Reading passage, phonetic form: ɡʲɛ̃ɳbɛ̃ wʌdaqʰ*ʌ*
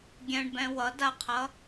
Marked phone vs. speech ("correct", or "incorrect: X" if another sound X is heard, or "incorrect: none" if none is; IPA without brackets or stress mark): correct